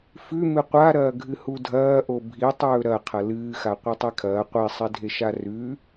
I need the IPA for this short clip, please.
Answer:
f ʉ m ɨ qʷ a ɾ ɐː ɡʱ ɨ h u dʱ ɐː ʔ o bʱ i tˤ ɵː ɾ ɐ qʰ ɐ l ɨː x a qʷ i tˤ i kʰ ɐː qʷ i sˤ e dʱ e ʃ a r ʉ

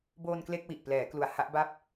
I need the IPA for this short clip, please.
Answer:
b oː˧ n k l e˥˩ k̚ w i˨˩ ʔ p l ɛː˩˦ k l u˩˦ a̯ h a˦˥ ʔ b a˥˩ p̚

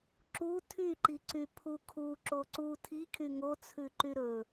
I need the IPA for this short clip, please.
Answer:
ǁ u tʰ y ǃ i ǀ y pʰ u kʰ u ǁ o ǀ u tʰ i kʰ y ŋ o t͡sʰ ʉ ǃ y ɾ ɵ

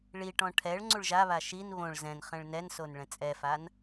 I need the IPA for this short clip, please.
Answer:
ɭ i ʈ ɔ̃ ʈʰ ɛ ɭ ŋ͡ǀ u ɭ ʒ a β a ʃ i n β õ ɭ z ɛ̃ n χ ɛ̃ ɭ n ɛ n s o n ɭ ɛ̃ t͡sʼ ɛ f a n

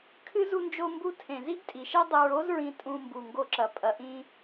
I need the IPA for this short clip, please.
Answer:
kʰ ɨ˦ z u˧ n d͡ʒ o˧ m b u˧ tʰ ẽ˨ z i˦ ɡ tʼ i˨ ʃ ɛ˦ dˤ e˧ ɹ o˦ z ɹ ĩ˧ tʼ ũ˧ m b u˨ ŋ ɡ o˧ ǁ ɐ˨ pʼ ɐ˨ ʔ ĩ˧

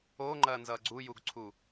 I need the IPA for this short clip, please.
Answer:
o ŋ͡ǃ ɐ n z ʌ ɡ͡ǀ u j u ɡ ǀʰ u

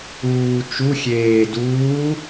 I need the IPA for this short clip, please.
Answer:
uː t͡ʃ u xʲ eː d uː

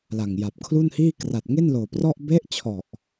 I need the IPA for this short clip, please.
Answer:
l a˨˩ ŋ j a˨˩ p̚ kʰ l u˥˩ n h iː˥˩ k r a˨˩ t̚ ŋ e˥˩ n l oː˨˩ p r ɔ˥˩ ʔ b e˦˥ ʔ t͡ɕʰ ɔ˨˩ ʔ

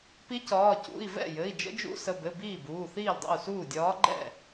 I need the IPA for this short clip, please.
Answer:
p i˧˥ c ɒː˩˧˩ c ṵ˩˧˩ i̯ v ɛ̰˥˩ j ɘ˩˧˩ i̯ d͡ʒ ə̰˧˥ d͡ʒ ṵ˧˥ s ə˩˧˩ b ɘ˩˧˩ b iː˥˩ b uː˩˧˩ θ iː˥˩ l dˤ ḭ˥˩ u̯ s uː˥˩ dʲ ɒː˧˥ ɡ͡ǃ ɛ̰˥˩

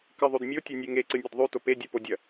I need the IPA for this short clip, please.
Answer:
k ɨ ðˤ ʉ d mʲ o tʲ ɐ nʲ e ŋ e ǀ ɨ nʲ e d ðˤ ʉ t o p e dʲ u p o dʲ ɐ

